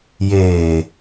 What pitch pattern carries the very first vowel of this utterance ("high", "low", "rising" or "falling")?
low